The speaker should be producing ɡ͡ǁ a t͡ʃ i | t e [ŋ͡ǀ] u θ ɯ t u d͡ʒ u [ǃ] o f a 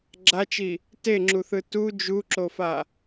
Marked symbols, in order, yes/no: no, no

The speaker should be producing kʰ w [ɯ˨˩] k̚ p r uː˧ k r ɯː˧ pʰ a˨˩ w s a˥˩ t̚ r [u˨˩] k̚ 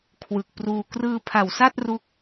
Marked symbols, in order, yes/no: yes, no

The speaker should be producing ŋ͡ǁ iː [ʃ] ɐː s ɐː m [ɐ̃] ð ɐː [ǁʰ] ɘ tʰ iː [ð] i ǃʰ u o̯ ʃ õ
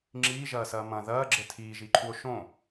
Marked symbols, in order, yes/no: no, yes, no, no

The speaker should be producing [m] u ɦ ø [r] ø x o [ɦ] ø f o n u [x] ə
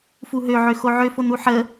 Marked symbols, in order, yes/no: no, no, no, no

